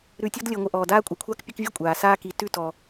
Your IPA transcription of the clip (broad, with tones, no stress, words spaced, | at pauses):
ɾʉ˨tʲɔ˦dlʲəː˨ŋʷə˨ ʔɔː˩daː˦ kʷʼa˨kʷʰaː˥kpʲʉ˦kvʲʉ˥ kʷʼaː˩ saː˦ki˨ tʉ˥tɔ˨